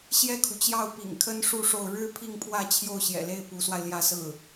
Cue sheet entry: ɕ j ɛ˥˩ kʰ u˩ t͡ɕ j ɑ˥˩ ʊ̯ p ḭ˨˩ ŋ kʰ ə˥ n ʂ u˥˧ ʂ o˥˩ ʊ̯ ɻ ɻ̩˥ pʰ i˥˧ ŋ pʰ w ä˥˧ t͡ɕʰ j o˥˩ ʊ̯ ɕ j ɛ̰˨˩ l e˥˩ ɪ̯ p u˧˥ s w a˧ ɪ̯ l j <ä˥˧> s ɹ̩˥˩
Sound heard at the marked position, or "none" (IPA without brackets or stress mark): ä˥˧